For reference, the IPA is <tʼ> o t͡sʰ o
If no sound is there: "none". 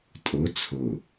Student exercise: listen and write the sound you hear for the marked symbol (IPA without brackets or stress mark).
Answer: tʼ